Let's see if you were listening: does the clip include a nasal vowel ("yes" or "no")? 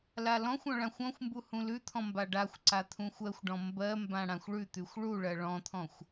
yes